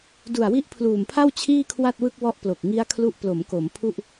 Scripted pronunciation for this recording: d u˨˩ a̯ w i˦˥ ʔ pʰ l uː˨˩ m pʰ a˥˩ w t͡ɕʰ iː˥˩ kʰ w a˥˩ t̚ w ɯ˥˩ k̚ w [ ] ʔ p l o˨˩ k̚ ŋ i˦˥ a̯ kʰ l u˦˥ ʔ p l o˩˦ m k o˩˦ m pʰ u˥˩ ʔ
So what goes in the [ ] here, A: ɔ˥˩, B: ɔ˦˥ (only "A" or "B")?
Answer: B